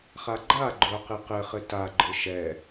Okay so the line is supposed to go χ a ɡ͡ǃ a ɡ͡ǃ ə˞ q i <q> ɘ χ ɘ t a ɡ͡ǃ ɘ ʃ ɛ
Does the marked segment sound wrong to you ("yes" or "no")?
no